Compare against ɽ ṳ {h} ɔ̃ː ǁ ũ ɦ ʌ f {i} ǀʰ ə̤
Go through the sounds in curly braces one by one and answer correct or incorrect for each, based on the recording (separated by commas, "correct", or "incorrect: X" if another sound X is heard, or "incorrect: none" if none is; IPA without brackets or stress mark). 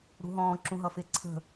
incorrect: ɦ, incorrect: ɪ